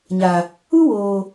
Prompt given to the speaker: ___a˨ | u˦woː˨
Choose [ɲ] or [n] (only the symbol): ɲ